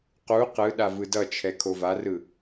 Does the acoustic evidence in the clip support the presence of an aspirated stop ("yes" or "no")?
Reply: yes